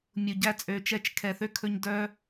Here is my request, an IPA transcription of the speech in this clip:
mʲ u˨ ɟ æ˧ t͡sʼ ø˨ t͡ʃ ɛ˧ t͡ʃ kʰ ɛ˨ θ ø˦ kʰ ɵ˧ ɲ d œ˦

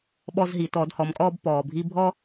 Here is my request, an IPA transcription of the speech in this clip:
ɓ ɔ˧ z ɦ i˩˧ t ɔː˩˧ d h ɔ˩˧ m kʼ ɔː˧ b p ɔː˩ bʱ i˧ bʱ ɔ˧

